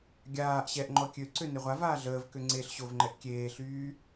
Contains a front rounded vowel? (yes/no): yes